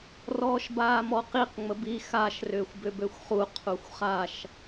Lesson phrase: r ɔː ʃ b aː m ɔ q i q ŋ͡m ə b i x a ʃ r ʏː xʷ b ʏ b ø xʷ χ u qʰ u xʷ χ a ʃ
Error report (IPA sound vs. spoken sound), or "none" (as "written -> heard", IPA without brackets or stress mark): none